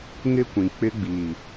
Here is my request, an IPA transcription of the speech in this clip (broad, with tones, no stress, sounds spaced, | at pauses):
ŋ ɪ˦ kʷ ĩ˨ k͡p ɪ˦ ɡ͡b iː˨